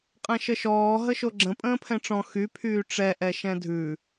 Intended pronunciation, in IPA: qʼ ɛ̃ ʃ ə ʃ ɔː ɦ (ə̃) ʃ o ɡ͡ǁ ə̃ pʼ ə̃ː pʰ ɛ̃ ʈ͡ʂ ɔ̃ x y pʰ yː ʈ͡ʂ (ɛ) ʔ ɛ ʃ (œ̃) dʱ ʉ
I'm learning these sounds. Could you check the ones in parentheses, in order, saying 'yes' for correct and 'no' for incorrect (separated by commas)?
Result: no, yes, no